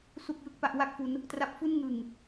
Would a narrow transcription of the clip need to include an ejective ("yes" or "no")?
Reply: no